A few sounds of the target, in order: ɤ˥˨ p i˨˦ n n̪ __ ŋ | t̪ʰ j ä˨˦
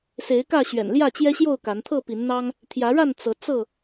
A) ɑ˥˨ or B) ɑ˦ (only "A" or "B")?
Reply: B